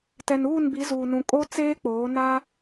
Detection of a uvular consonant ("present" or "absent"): absent